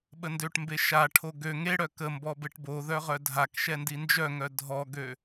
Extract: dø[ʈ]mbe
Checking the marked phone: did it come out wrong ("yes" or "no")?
no